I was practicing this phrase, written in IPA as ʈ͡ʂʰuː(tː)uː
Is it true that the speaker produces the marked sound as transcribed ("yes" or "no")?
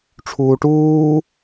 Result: no